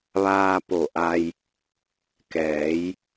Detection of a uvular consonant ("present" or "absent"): absent